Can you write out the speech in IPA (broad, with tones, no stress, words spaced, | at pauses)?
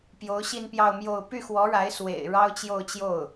pjo˧˥ʊ̯ɕi˥˧npjɑ˥˧ʊ̯mjo˥˧ʊ̯ py˥˩xwɔ˧˥ɻa˧˥ɪ̯ swḛ˨˩ɪ̯ ɻɑ˥ʊ̯t͡ɕjo˥˧ʊ̯t͡ɕjo˥˩ʊ̯